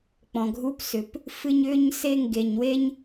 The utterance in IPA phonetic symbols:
k͡p ɔ̃˨ ɡʱ u˦ p s ʏ˨˦ p | f ɨ˦ ɲ ʏː˦ ɲ s e˦ ŋ ɡ e˨ ɲ w e˦ ɲ

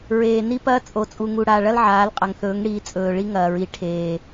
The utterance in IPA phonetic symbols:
ɹ eː˨ n i˦ p ɐː˦ t͡sʼ o˨ t͡sʼ u˨ ŋ u˨ ɽ a˨ ɭ ɐ˦ l ʕ aː˨˦ l qʼ ɐ˨ ŋ θ ɵː˨˦ ŋ ɽ i˨˦ t͡sʼ ɵː˨ ɭ i˦ ŋ ɐː˨ ɹ i˨ ʈʰ eː˨

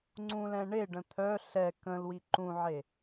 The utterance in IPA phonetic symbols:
ŋ͡ǀ ũ l ɛ̃ ɳ e ɖ ə̃ t̪ʰ œ ɬ ɛ k ə̃ l w i ǃ ũ ʕ e

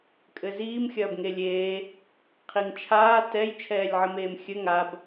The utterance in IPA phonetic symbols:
kʼ ɘ z iː m xʲ ɐː b ŋ e lʲ eː | qʰ i ŋ t͡ʃʰ aː t ɛ j t͡ʃʰ ɛː lʲ ʕ ɘ m eː m xʲ ɘ ŋ a b

